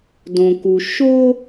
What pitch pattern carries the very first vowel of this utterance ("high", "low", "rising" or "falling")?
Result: low